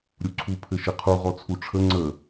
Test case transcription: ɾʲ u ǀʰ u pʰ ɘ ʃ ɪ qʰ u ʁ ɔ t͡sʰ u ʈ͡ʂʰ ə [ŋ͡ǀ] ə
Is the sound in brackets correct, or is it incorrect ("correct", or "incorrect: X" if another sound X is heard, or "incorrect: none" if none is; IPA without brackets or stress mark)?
correct